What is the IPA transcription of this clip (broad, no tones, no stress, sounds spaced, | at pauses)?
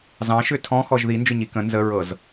z ɑ̃ ʃ ʏ tʰ ɔ̃ x ɔ ʒ ð i n d͡ʒ ʏ ɲ i k ə̃ n z ə ɹ ɤ z